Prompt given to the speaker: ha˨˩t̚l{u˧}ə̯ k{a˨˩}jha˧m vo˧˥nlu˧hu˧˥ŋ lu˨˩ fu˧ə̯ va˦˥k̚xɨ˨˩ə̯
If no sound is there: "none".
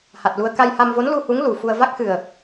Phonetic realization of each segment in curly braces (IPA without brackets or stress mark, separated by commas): u˧, a˧